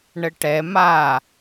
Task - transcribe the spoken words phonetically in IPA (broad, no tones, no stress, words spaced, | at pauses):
ɳəʈɛ ma